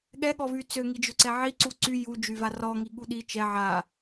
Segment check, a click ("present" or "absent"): present